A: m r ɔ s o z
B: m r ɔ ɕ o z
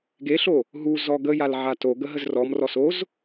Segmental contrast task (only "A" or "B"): A